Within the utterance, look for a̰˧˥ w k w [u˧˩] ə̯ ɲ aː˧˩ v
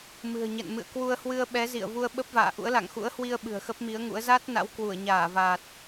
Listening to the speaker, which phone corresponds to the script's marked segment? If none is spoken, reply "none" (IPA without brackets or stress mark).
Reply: u˧˩